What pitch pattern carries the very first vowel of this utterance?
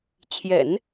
low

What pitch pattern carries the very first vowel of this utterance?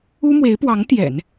high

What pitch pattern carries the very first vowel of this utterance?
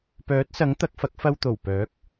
rising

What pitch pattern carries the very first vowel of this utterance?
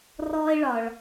high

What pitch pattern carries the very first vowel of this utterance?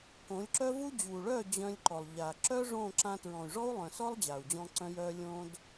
rising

